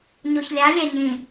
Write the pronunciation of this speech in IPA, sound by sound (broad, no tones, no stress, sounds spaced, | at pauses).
ɲ o ç lʲ a lʲ ɛ ɲ ĩ